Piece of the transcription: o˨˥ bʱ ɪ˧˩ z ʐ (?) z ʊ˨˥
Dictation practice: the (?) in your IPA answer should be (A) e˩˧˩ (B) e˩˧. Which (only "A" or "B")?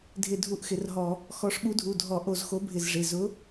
A